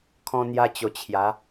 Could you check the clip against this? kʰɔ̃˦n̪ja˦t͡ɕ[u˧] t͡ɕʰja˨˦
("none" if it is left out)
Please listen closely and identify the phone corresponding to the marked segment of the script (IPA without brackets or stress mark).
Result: o˧